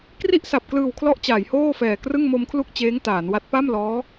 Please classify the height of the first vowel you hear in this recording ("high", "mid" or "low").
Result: high